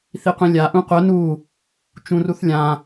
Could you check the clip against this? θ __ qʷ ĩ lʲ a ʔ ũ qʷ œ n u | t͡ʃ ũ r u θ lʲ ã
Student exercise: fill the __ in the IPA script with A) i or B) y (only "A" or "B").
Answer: A